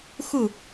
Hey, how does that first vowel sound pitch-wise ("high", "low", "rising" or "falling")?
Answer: falling